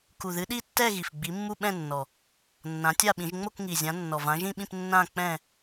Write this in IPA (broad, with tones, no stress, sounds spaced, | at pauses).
k u˨˩ ð ɨ˨˦ ɗ i˥˧ tː ɛ˥˧ ɣ i˨˩ f ɡ͡b i˨˦ mː u˥˧ ɓ ɛ̃˥˧ nː ɔ˨˩ | nː ã˨˦ tʲ a˥˧ ɓ ĩ˨˦ ʒ ŋ͡m o˥˧ k ŋ i˨˩ zʲ ã˨˦ nː ɔ˨˩ v ã˨˦ ʒ ĩ˥˧ ɓ ĩ˥˧ p nː ã˥˧ k͡p ɛ̃˥˧